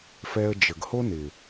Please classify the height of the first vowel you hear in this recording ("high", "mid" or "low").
mid